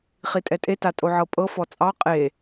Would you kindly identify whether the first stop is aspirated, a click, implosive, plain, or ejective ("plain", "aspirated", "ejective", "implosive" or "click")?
ejective